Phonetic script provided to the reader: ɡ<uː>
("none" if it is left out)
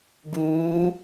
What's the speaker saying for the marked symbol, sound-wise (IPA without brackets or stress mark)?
uː